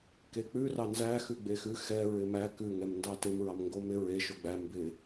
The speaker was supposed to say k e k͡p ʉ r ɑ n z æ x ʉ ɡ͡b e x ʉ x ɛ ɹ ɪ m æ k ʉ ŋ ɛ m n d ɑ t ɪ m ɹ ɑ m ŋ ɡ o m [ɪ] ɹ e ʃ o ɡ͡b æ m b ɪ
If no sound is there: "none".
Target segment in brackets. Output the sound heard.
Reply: ɪ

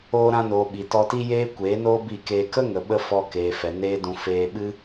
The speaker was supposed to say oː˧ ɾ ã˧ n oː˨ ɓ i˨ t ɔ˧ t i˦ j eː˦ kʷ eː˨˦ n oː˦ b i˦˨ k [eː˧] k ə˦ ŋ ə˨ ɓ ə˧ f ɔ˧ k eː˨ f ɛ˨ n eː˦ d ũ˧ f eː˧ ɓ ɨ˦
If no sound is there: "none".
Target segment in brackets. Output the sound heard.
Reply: eː˧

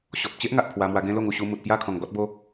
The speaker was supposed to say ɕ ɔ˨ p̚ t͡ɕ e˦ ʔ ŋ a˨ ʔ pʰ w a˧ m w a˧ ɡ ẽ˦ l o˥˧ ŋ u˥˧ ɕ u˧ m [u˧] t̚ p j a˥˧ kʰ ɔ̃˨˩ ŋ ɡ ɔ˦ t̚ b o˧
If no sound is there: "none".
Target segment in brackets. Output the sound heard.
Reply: u˨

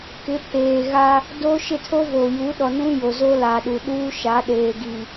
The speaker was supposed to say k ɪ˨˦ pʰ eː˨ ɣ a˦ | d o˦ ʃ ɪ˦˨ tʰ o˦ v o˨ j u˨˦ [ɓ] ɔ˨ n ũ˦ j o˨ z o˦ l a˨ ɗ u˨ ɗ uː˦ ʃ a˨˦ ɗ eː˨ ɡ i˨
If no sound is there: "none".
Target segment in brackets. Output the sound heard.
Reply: ɗ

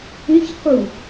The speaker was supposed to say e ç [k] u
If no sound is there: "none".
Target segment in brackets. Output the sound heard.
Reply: q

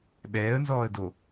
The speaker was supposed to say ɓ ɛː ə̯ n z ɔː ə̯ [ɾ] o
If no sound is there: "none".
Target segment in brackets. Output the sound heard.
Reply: d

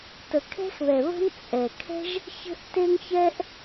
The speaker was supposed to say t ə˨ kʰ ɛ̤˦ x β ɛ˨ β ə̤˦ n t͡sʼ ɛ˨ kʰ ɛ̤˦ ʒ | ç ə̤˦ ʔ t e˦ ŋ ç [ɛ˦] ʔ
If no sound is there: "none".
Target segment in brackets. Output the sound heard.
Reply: ɛ˦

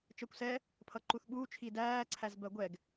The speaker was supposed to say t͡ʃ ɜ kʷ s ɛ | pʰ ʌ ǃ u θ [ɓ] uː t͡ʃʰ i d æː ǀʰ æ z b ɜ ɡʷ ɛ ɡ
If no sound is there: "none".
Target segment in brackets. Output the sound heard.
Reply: ɓ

